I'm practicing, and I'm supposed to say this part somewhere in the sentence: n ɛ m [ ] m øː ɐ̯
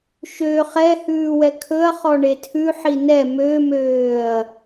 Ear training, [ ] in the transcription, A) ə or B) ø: B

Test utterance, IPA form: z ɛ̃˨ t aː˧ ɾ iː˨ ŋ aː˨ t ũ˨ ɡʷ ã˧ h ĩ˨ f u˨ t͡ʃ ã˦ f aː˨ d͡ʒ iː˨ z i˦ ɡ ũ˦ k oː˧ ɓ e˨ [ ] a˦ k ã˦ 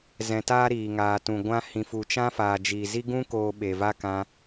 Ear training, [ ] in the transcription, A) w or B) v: B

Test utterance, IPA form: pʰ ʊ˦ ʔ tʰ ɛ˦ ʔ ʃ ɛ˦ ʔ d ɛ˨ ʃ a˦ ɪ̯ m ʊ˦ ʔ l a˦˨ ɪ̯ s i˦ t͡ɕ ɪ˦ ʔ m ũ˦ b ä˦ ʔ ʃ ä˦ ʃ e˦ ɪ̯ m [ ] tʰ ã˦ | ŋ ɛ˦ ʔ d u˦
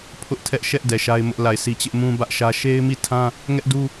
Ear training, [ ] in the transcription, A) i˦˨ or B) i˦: A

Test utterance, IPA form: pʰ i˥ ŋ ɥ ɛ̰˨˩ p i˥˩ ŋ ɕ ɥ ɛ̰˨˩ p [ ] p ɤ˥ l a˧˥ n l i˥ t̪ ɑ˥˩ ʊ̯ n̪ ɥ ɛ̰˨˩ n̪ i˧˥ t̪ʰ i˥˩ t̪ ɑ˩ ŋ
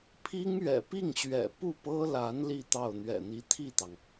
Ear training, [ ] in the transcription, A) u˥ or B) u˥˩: B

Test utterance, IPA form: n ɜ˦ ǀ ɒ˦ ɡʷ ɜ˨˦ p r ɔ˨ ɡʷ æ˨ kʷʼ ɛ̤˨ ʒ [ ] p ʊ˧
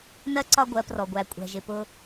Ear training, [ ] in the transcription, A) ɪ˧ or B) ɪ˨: B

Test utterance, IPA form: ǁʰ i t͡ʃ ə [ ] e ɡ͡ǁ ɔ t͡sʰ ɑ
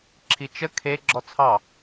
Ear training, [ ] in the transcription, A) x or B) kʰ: B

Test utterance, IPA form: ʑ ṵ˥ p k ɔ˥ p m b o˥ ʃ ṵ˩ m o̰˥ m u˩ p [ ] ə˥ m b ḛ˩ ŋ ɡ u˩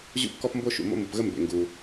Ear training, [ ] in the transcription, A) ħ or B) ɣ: B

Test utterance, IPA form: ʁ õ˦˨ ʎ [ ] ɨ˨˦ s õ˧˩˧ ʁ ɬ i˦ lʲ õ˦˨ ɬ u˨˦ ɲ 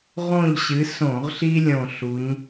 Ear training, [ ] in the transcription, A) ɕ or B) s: A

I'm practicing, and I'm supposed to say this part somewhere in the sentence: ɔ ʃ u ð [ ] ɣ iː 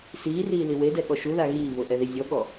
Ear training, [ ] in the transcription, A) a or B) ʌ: A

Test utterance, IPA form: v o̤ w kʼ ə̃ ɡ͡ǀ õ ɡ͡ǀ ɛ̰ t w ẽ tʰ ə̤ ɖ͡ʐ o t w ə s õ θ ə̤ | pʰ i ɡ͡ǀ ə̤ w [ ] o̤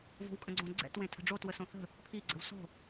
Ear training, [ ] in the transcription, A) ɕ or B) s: B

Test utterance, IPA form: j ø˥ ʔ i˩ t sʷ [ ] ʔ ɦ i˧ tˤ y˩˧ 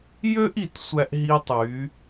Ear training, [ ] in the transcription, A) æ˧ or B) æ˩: A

